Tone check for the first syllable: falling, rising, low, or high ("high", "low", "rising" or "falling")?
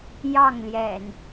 falling